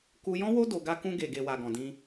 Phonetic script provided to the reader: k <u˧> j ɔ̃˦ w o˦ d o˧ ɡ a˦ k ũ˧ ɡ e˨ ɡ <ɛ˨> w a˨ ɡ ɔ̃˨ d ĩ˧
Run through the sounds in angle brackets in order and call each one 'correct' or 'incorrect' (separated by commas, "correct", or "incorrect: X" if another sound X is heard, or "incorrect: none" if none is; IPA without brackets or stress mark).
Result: correct, incorrect: e˨